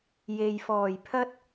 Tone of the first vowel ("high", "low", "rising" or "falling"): low